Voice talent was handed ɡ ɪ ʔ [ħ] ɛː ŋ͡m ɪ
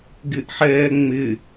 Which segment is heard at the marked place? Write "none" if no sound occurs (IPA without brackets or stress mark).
ħ